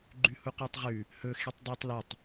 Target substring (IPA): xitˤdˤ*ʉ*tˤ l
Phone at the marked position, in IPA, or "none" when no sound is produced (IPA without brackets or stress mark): ʉ